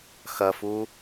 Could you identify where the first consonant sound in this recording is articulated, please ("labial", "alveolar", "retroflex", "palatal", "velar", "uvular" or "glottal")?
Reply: velar